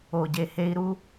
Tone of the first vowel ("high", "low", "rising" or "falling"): low